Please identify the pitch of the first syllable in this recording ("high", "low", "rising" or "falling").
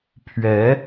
rising